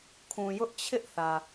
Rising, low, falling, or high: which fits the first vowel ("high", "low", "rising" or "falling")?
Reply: low